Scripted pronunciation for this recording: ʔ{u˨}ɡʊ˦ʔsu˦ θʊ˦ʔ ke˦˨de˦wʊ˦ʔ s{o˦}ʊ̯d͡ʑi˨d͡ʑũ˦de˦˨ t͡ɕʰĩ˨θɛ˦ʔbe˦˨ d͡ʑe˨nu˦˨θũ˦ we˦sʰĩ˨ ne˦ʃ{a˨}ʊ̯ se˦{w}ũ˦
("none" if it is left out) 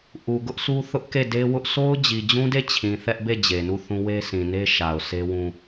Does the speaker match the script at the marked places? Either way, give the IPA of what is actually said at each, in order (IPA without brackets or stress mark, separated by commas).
u˨, o˦, a˨, w